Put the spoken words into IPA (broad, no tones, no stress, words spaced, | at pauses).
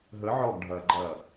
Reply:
ɦə ʕɔɡɖʱɐːɡ͡ǃɐː